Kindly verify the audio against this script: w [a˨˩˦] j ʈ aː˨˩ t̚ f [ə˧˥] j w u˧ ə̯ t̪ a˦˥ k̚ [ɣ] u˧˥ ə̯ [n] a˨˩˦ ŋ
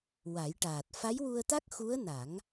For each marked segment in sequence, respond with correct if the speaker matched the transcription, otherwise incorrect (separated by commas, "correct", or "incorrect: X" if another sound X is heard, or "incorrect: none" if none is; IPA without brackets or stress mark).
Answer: correct, incorrect: a˧˥, incorrect: x, correct